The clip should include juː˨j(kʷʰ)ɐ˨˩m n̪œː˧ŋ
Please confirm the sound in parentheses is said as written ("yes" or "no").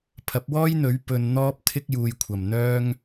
yes